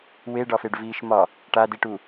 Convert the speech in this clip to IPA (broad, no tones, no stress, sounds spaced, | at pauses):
w e ɖ ɒ f e ɖ v iː ʃ m ɒ | ʈ a d i ʈ u